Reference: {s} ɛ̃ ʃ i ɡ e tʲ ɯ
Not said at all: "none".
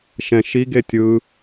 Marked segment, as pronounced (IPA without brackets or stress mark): ʃ